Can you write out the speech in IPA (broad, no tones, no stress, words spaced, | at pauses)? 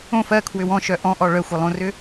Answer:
õf ɜkʰwʏw ɔ̃ʃœ ʔɔ̃ʔɔ ɭœxʷɪlˠõrʏ